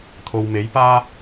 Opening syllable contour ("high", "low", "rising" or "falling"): low